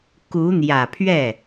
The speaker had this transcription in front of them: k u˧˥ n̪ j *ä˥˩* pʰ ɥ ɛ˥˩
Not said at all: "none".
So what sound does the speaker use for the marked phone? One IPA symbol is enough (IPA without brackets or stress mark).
ä˨˩